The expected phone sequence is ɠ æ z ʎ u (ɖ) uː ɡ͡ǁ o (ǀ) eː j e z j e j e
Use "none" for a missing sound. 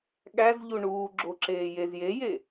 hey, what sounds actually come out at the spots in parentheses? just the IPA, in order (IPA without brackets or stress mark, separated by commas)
ɳ, ǁ